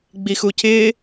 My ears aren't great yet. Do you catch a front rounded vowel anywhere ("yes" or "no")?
no